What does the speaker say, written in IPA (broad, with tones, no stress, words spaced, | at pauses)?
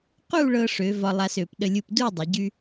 qu˥˧ɭɤ˧ʂø˩˧ vɒ˧lˠa˧sø˩˧p ɗə˧lʲu˧pdu˥˧ dˤə˩˧ɟy˧